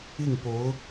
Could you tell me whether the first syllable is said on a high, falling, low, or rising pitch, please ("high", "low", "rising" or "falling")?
falling